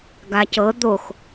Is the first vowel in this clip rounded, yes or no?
no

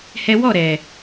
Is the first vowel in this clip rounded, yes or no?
no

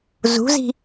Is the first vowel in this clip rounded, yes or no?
yes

